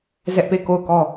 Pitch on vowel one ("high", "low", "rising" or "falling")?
high